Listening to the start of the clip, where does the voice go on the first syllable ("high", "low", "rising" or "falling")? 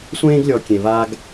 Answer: high